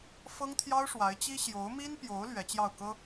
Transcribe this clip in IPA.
f ɤ˥ ŋ t̪ʰ j ɑ˥ ʊ̯ ʂ w a˧˥ ɪ̯ t͡ɕ i˥ ɕ j o˧˥ ʊ̯ m i˥ n p j o˧˥ ʊ̯ l ɥ ɛ˧˥ t͡ɕ j ɑ˥˩ ʊ̯ k ɤ˥

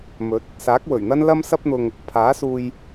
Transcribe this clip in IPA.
m ɵ˨˥ t̚ | s aː˨˥ k̚ w ɵ˨˩ ɥ n̪ ɐ˥ n l ɐ˥ m s ɐ˥ p̚ n̪ ʊ˧ ŋ | pʰ aː˨˥ s uː˧ j

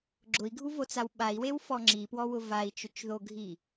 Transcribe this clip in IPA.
ɡ͡ǁ ʊ i̯ ɡʱ u v o t͡s a w ɓ a i̯ w e w f ɔ ŋ͡ǁ i p w ɔ w ʊ v a i̯ t͡ʃ ʊ t͡ʃ ð o ɡʱ i

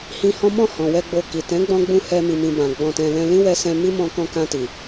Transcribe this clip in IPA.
h ĩ˧ h ɔ̃˦ m ɔ̃˦˨ h ɔ̃˨ w ɛ˧ ɡ͡b o˧ k i˨ t ɛ̃˨˦ ɡ͡b ɔ̃˧ ɡ͡b ũ˧ h ɛ˧ m i˨ m ĩ˨ b ã˨ ɡ͡b ɔ̃˧ t ɛ̃˧ l ɛ̃˧ l ĩ˦ w ɛ˧ s ɛ̃˧ m i˦ m ɔ̃˧ k ɔ̃˧ k ã˧ t i˨

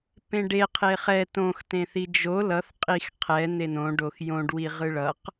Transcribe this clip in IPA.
p ẽ ɖ e qʰ e χ ɛ t õ x t ẽ θ i d͡ʒ o l ʌ θ qʼ i x qʰ ɛ n e n õ ɖ o x j õ ɖ w i ʁ ɯ ɭ ʌ q

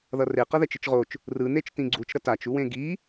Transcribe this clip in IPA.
ð ʌ r e q ʌ ð ɛ t͡ʃ ɯ t͡ʃ ʁ o t͡ʃ | r ɯ n e t͡ʃ t ĩ ɡ͡ǀ u t͡ʃ ɾ ʌ t a t͡ʃ u w ẽ ɡ i

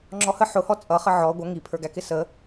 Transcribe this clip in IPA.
ŋ͡ǁ ɔ h ə ħ ʊ h ɔ t͡sʼ ʌ χ ə ʕ ɔ ɡʷ ʌ ŋ i pʰ ə˞ ɡ æ k ɪ s ə

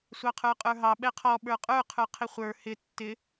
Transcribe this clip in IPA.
sʷ ɑ qʰ ə˞ qʼ ə˞ ɦ ɑ ɓ ɛ qʰ ɔ ɓ ə˞ qʼ ə˞ qʰ ə˞ qʰ ɪ χʷ ə˞ h ɪ tː ɪ

